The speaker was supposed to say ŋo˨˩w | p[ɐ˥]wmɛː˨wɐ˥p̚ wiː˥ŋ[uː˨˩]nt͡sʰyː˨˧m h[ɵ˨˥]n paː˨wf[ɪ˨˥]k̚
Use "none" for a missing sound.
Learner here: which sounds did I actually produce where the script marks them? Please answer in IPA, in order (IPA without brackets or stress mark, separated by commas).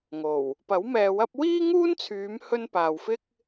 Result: ɐ˨˥, uː˥, ɵ˥, ɪ˥